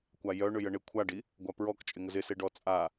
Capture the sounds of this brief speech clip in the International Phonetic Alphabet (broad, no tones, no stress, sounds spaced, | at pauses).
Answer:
kʷ a j œ ɳ ʏ j ə ɳ ɪ kʷʰ a ɖ i | ɡʷ a p ɹ ɔ k t͡ʃʼ ɪ ŋ ə z ɪ s e ɖ ɔ t͡sʼ a